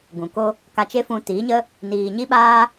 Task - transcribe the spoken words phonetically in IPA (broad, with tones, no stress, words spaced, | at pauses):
ɡũ˨ko˦ | ka˧t͡ʃe˦ fũ˧tiː˨˦ɲə˦ | niː˨ɲi˦ɓaː˦